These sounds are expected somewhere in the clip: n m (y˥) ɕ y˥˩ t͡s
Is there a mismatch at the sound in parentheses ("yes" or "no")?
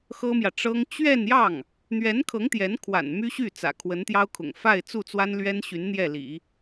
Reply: no